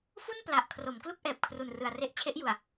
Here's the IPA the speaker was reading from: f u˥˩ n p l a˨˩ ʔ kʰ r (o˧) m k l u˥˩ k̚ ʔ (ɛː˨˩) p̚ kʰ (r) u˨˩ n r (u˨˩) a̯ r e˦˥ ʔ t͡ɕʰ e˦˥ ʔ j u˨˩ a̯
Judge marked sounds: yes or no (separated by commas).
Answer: no, yes, yes, no